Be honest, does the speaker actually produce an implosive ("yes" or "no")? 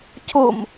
no